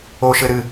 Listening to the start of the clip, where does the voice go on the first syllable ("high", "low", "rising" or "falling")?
high